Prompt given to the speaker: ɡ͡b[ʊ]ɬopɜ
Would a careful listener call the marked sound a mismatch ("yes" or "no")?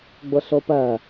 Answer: no